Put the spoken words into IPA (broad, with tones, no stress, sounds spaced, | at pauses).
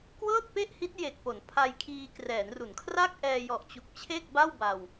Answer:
k w ɤː˥˩ t̚ p e˥˩ ʔ h i˦˥ t̚ j e˨˩ k̚ p o˩˦ n pʰ a˧ j kʰ iː˧ k r ɛː˩˦ n r u˩˦ n kʰ r a˥˩ k̚ ʔ ɛː˧ j ɔ˨˩ ʔ t͡ɕ u˨˩ k̚ t͡ɕʰ e˥˩ k̚ b a˥˩ w b a˧ w